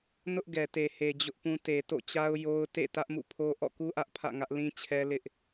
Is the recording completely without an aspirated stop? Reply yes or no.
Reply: no